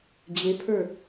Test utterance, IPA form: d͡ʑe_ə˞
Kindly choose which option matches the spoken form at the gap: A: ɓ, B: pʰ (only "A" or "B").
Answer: B